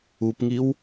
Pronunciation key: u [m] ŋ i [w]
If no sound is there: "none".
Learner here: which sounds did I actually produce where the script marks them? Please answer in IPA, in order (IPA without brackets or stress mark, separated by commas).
p, w